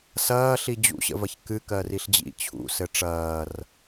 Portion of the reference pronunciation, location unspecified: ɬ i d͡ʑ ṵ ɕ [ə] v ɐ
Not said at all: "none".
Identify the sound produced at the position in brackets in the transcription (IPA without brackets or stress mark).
ə̰